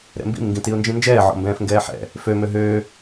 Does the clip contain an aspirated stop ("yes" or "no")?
no